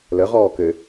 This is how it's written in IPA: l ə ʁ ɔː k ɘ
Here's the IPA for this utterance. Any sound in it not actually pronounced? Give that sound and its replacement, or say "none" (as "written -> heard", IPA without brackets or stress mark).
none